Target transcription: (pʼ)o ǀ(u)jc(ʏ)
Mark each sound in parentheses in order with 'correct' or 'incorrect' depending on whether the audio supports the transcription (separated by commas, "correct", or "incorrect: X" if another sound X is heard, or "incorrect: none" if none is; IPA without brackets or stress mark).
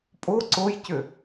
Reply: correct, incorrect: o, correct